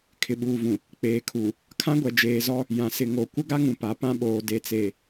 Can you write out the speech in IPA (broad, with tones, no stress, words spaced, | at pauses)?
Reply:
kʰɪ˨ɓuː˨vũ˨ | k͡peː˨ kʰu˨ | kʰã˦ɡʷɛ˨ d͡ʒeː˨zɔ˦ | jã˨sɪ˨ŋo˨ kʷɪ˦ɡa˦ŋũ˨ pa˨˦pã˦ɓoː˨ de˨t͡se˨